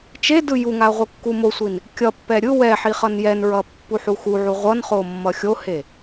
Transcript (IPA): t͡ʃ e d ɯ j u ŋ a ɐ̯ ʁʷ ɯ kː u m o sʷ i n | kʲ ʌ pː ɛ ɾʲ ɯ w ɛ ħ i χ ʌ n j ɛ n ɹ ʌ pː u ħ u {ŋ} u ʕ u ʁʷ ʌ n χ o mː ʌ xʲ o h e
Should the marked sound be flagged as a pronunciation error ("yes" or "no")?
yes